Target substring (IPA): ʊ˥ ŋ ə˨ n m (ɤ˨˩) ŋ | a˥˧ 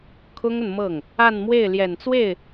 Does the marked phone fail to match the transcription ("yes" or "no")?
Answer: yes